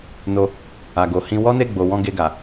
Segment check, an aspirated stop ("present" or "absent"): absent